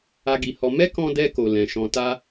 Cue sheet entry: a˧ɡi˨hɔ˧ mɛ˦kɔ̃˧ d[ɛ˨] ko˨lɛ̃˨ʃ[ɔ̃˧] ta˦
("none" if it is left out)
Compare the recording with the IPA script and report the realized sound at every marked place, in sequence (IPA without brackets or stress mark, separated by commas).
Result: ɛ˧, ɔ̃˧